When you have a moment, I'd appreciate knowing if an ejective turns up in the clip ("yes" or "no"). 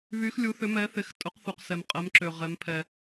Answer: yes